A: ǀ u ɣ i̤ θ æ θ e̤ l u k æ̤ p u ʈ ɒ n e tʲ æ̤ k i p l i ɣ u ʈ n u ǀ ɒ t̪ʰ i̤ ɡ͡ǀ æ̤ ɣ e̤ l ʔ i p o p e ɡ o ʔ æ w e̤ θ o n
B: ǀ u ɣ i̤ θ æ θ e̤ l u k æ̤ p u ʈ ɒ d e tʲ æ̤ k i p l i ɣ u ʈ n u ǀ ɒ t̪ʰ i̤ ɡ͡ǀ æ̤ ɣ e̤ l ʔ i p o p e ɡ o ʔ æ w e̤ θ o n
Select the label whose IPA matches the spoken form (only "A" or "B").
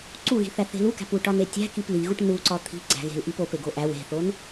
A